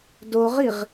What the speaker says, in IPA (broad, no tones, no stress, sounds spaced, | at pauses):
d o ʁ i ʁ